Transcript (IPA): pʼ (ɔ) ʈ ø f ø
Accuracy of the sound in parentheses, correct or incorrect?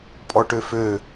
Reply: correct